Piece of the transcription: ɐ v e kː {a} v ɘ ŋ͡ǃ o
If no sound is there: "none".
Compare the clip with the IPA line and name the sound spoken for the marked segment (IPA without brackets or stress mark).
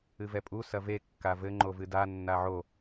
a